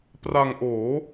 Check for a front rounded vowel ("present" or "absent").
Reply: absent